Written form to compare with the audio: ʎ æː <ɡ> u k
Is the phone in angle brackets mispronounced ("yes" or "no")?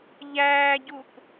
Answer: yes